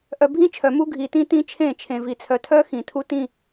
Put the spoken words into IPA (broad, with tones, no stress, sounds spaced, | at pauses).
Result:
ʔ œ˨ bʱ ĩ˦ t͡ʃʰ œ˨ m u˦ ɡʱ i˨ t ĩ˦ t ĩ˦ t͡ʃʰ ẽ˦˨ t͡ʃʰ ẽ˨ v i˨ t͡sʰ œ˨ tʰ œ˦ x ĩ˨ tʰ u˦ t ĩ˦˨